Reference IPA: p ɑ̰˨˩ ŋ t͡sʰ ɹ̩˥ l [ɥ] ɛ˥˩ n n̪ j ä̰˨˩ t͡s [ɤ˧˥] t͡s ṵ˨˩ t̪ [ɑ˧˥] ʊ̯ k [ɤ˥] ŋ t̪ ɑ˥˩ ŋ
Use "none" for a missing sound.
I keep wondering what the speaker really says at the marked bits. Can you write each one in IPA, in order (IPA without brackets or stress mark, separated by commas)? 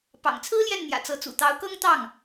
j, ɤ˧˥, ɑ˧˥, ɤ˥